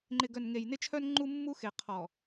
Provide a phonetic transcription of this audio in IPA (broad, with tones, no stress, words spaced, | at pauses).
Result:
ŋ͡ǃɪ˨ɡœ˨n ŋe˨jnɪ˦t͡ʃʰœ˦n ŋ͡ǃu˦mːu˦ xe˨qʰɔ˨